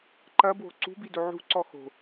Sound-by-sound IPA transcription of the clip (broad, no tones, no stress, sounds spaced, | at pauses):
ǃ ɐ b w o̤ ǀ ṳ b i d o ʕ ṳ ǀ ɔ x o̤